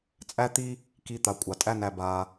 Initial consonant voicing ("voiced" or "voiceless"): voiceless